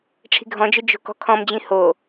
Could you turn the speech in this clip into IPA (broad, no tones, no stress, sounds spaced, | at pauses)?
ʈ͡ʂʰ i̤ ɡʱ ɔ̃ d͡ʒ ɵ d͡ʒ o̤ k ɔ̤ kʰ ɔ̃ m d͡ʑ ĩ h o